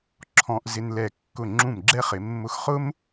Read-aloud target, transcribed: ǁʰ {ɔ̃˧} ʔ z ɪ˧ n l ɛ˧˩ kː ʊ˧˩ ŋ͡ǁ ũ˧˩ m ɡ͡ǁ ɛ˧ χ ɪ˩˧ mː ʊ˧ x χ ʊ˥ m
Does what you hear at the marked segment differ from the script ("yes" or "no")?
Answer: no